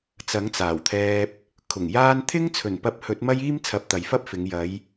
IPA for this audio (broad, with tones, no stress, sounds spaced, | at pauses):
t͡s ɐ˨˥ ŋ t͡s aː˨˩ w t̪ʰ ɛː˧ p̚ | kʰ ʊ˨˩ ŋ j aː˧ n t̪ʰ ɪ˥ ŋ t͡sʰ ɵ˨˩ n p ɐ˨˥ p̚ h ɵ˨˥ t̚ m ɐ˥ j iː˥ m t͡sʰ ɐ˨˥ p̚ t̪ ɐ˨ j f ɐ˥ p̚ f ɪ˨˧ ŋ j ɐ˨˧ j